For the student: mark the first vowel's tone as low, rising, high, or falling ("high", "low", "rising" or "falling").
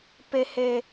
high